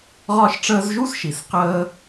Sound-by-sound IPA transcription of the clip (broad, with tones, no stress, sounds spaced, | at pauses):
ʁ ɒ˦ ʃ ʈ͡ʂ əː˦ z ʒ u˥ s ʃ i˨ s q əː˦